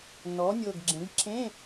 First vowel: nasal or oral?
oral